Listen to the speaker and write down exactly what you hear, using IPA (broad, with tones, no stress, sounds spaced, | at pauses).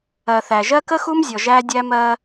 ɜ˨ θ æ˨ ʒ ɜ˦ k ə˦ x u˦ m zʲ ɔ˨ ʒ æ˦ dʲ æ˦ m ɜ˦